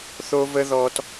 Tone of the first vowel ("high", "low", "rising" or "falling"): high